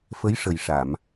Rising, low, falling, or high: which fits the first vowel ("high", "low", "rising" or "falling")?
rising